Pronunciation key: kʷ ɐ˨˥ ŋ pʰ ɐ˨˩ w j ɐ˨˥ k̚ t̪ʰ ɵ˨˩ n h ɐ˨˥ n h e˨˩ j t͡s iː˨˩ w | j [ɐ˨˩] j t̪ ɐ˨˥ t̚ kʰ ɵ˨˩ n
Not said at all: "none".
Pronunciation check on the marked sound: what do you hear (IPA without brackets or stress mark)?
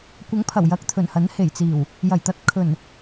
ɐ˨˩